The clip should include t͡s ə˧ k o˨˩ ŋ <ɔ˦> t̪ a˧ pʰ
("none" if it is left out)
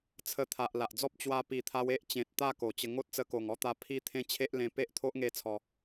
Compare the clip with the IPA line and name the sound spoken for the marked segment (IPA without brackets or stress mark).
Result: ɔ˦